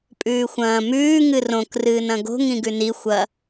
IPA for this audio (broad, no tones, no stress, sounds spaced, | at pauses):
pʼ ʉː xʷ ɐ̃ː m ʉː ŋ ɨ r õ k r ɨː n ɐ̃ ɡ o̤ ŋ ĩ ɡ ʉ n i xʷ ɐ